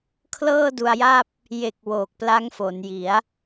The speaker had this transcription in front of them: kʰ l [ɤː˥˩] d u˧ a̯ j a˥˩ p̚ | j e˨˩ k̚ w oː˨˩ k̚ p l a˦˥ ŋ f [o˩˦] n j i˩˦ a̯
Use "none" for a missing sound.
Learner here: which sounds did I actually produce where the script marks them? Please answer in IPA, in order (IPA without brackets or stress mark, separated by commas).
ɤː˥˩, o˩˦